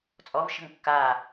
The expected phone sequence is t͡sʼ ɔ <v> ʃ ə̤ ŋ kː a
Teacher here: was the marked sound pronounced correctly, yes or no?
yes